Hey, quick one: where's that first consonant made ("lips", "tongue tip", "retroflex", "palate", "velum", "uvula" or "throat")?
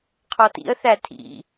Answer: uvula